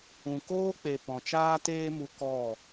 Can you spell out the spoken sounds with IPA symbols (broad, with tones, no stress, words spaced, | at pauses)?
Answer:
ũ˨koː˦k͡pe˨ pɔ̃˨t͡ʃaː˦teː˦mu˧ kɔ˦˨